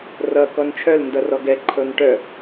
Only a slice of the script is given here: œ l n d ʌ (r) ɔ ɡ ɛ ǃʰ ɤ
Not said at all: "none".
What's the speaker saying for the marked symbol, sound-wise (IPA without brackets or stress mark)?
r